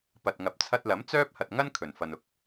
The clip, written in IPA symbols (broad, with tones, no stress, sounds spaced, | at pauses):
p ɐ˨ t̚ ŋ ɐ˨ p̚ t͡sʰ ɐ˧ t̚ l ɐ˨˥ m t͡s œː˥ p̚ h ɐ˨ t̚ ŋ ɐ˥ n kʰ ɵ˨˩ n f ɐ˨ n ʊ˨ k̚